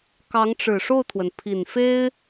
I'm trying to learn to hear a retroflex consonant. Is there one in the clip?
yes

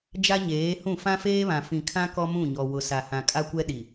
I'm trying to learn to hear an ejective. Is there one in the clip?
yes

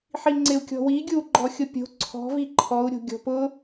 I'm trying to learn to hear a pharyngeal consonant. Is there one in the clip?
yes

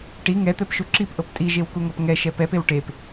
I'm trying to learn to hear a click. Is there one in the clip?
yes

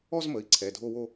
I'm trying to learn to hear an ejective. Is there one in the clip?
no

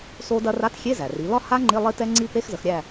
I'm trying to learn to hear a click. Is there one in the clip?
yes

